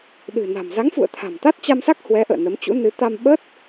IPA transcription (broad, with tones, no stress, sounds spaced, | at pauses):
ɗ ɨ̤˨˩ n a̤˨˩ m z a˨˦ ŋ f ṵ˧˨ ə̯ t̪ʰ a̤˨˩ m t̪ a˦˥ t̚ t͡ɕ a˧ m s a˦˥ k̚ h w ɛ˨˦ ʔ ə̰ː˧˨ n ə˨˦ m t͡ɕ ṵ˧˥ n ɨ˨˦ t̪ a˧ m ɓ ə˦˥ t̚